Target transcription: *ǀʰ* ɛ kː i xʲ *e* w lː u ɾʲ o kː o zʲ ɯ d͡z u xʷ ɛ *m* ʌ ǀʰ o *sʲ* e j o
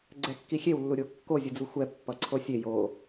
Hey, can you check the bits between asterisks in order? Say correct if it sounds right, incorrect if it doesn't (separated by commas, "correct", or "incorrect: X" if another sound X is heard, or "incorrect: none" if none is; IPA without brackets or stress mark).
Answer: incorrect: ɡ͡ǀ, correct, incorrect: pː, correct